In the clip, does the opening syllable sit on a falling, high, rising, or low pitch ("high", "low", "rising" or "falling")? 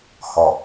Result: low